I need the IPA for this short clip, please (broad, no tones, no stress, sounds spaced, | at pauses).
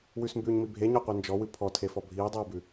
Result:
w ʉ s m b ʉː ɲ m i bʱ e ɲ ɔ qʷ e n d͡ʒ ɔ w ɨ pʰ ɔ tʰ e f ɔ bʱ iː dˤ iː b ʉ